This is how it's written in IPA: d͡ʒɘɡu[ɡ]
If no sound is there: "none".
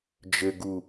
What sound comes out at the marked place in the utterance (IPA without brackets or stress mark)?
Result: none